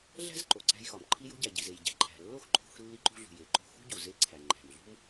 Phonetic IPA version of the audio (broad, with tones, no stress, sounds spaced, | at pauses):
ɮ æ̤˥ z ǃ o˩ ǀ æ̤˧ j x ɒ˩ m ǃʰ i˧ j o̤˧ ɟ æ˩ ɟ i˩ z e˩ j ɟ æ̤˩ ǃʰ æ̤˩ lː o˥ x ǃʰ o̤˧ x lː i˧ ǃ ṳ˧ ɮ ṳ˩ j e˩ ǃ o̤˧ x ṳ˥ ɟ u˩ z e˧ ǀʰ æ˩ ŋ͡ǃ æ̤˩ m ɮ ṳ˥ m